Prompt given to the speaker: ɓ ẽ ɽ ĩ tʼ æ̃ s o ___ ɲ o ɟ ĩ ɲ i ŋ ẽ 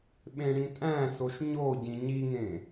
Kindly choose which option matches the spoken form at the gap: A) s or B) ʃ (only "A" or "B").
B